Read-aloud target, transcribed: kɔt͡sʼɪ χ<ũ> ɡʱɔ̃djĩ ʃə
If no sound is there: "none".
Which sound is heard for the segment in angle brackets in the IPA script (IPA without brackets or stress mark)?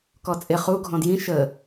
u